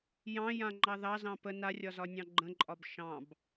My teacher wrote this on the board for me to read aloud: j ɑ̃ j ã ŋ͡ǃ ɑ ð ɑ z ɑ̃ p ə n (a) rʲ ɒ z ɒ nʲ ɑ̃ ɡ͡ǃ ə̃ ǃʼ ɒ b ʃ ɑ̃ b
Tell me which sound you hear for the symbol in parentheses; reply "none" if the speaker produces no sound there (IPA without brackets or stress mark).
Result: a